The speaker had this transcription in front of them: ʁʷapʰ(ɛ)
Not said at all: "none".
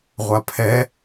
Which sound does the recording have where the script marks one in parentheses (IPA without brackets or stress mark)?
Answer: ɛ